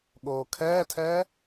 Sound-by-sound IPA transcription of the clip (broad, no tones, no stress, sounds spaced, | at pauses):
ɠ oː kʰ ɛː tʰ ɛː